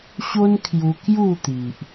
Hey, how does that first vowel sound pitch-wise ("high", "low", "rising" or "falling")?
high